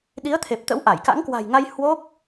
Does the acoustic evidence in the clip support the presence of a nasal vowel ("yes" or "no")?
no